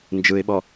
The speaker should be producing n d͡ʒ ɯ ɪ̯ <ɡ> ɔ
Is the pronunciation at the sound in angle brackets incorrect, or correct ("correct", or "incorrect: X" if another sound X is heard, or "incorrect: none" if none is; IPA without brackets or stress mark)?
incorrect: ɓ